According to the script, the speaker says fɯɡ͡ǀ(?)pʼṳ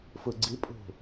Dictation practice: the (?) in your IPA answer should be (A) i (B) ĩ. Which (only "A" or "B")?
A